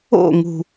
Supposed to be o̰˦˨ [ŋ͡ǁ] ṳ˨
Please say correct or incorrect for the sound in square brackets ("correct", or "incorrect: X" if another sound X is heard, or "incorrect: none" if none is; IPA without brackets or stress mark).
incorrect: ŋ